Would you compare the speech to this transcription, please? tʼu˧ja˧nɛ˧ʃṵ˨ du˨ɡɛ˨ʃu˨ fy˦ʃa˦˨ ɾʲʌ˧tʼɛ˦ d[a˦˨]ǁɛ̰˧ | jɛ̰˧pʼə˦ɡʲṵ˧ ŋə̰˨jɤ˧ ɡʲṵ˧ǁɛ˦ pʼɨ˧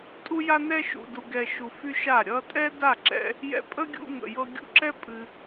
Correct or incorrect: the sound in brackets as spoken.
correct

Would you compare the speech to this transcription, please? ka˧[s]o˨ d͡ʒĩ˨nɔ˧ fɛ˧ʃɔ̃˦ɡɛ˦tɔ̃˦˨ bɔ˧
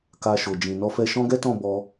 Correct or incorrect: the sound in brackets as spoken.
incorrect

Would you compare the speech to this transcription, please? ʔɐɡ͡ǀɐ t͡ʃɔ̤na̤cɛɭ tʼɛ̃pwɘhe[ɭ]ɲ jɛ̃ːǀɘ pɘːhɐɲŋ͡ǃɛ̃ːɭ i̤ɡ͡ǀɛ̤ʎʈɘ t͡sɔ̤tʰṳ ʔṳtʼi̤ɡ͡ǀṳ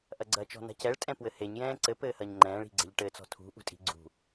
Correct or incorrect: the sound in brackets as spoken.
incorrect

